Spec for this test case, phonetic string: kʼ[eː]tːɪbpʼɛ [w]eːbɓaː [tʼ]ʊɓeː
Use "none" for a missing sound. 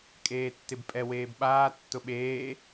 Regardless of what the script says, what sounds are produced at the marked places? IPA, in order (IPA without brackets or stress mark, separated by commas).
eː, w, tː